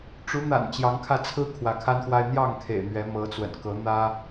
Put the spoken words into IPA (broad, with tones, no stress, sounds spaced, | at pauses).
ʈ͡ʂ u˨˦ n̪ a̰˨˩ n t͡ɕ j ɑ˨˦ ŋ kʰ ä˧ t͡sʰ ɹ̩˦ kʰ w ä˨˦ kʰ a˦ n x w a˦ ɪ̯ n̪ j ɑ˥˨ ŋ kʰ ḛ˨˩ ɪ̯ n̪ ɥ ɛ˨˦ m ɤ˨˦ t͡s w ə̰˨˩ n k ɤ˨˦ n̪ ä˦